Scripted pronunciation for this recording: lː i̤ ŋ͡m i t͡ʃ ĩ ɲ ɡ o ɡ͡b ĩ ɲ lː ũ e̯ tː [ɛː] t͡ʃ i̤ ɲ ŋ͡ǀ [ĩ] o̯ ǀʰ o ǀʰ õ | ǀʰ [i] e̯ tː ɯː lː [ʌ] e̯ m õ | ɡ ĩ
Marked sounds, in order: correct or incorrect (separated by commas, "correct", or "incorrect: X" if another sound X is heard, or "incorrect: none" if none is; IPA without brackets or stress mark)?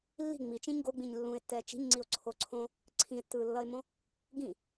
correct, incorrect: i, incorrect: ĩ, correct